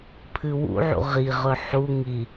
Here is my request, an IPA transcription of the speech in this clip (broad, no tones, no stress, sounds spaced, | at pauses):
pʰ ɨ w ṵ ʕ ṵ ʁ i ʁ ɵ ħ u ŋ i